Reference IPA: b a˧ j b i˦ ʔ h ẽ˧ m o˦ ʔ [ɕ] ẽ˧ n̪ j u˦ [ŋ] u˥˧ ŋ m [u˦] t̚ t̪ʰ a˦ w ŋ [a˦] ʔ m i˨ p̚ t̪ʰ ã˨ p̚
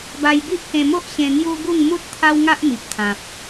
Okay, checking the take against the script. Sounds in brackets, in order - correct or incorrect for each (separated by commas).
correct, incorrect, correct, correct